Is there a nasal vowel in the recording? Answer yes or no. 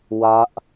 no